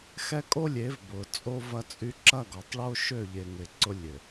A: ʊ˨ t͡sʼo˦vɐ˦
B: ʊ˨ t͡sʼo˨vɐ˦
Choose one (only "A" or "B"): A